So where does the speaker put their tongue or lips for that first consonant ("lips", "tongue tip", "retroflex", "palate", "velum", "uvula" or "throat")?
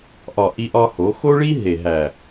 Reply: throat